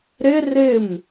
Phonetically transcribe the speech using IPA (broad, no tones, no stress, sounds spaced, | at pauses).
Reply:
ɾ ɪ r ɪ m